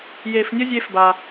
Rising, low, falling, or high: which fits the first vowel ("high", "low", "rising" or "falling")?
low